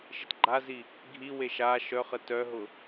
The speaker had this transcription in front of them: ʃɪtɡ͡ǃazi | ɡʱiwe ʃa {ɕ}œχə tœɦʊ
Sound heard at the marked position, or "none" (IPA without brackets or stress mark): ʃ